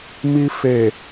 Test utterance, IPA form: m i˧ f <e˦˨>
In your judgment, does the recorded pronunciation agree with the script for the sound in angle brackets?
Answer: no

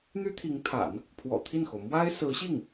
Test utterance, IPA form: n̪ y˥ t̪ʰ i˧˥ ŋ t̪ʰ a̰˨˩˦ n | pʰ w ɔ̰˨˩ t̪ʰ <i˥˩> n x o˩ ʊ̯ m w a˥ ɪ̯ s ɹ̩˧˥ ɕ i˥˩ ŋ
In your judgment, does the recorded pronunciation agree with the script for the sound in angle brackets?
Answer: yes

